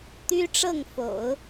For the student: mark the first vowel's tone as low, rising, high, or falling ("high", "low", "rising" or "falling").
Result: high